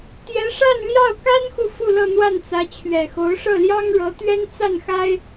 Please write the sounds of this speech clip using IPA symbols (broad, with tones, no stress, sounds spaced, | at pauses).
t̪ j ɛ˧˥ ʂ a˥˧ n l j ɑ˥˩ ʊ̯ k a˥ n x u˨ f u˥˧ l ɤ˥˧ n̪ w a˥˩ n t͡s ä˧˥ t͡ɕʰ ɥ ɛ˨˩ x o˧˥ ʊ̯ ʂ ɤ˥˩ l j ɑ˥ ŋ ɻ ɤ˧˥ t̪ ɥ ɛ˥ n t͡s a˥˩ n x a˥ ɪ̯